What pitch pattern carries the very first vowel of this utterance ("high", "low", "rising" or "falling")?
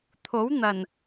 rising